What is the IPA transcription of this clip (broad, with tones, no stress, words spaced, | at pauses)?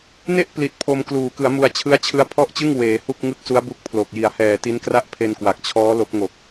ne˥˩ʔpli˨˩t̚ pʰo˧m kluː˩˦kɯ˩˦a̯mu˧a̯ t͡ɕʰɯ˦˥a̯t͡ɕʰɯ˦˥a̯pʰɔ˥˩ʔt͡ɕɯ˥˩ŋ weː˩˦hu˥˩k̚ŋɯ˥˩k̚ su˦˥a̯bu˦˥k̚pʰlo˨˩k̚ji˨˩a̯ hɛː˨˩ti˦˥nkra˥˩ʔ pʰe˧nkwa˨˩k̚t͡ɕʰɔː˦˥ lo˦˥k̚ŋo˨˩k̚